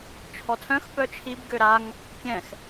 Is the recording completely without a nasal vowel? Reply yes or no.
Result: no